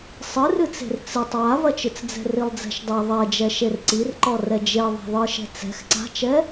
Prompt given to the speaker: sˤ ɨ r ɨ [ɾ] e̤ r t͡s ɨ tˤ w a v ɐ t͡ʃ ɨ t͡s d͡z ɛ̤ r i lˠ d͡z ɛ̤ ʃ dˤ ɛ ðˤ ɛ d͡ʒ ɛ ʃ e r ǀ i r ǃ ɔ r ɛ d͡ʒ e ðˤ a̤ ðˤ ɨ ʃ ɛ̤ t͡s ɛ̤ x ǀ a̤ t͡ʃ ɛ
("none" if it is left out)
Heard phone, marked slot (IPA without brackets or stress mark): t͡s